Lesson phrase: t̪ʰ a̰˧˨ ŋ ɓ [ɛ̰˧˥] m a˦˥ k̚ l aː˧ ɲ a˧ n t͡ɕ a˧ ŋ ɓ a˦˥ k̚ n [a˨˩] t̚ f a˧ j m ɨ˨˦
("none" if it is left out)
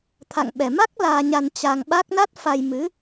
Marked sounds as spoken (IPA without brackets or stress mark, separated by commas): ɛ˨˩, a˦˥